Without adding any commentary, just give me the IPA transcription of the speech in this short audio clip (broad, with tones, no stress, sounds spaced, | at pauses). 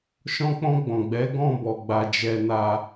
ʃ ɔ̃˧ k͡p ɔ̃˧ ɡ͡b ɔ̃˨ ɡ͡b ɛ˨˦ ɡ ɔ̃˦˨ b ɔ˨ ɡ͡b a˨ d͡ʒ ɛ˧ n a˧